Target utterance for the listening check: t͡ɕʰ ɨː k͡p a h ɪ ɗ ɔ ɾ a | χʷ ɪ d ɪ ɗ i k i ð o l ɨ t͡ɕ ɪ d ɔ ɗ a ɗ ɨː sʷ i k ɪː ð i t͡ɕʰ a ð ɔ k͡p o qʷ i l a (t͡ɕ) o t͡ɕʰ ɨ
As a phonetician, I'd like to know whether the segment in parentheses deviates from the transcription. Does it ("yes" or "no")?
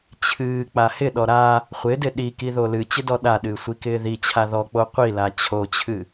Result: yes